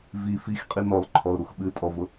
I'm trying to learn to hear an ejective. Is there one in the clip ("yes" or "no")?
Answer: yes